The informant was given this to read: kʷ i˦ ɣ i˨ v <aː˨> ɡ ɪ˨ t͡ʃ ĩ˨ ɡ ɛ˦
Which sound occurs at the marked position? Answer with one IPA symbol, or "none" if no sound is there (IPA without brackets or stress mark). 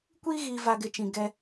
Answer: a˨